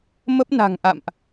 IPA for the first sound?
m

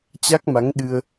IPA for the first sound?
t͡ɕ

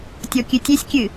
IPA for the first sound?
tʲ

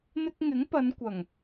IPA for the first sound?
n̪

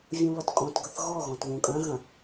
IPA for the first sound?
vʲ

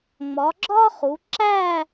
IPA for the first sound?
ŋ͡m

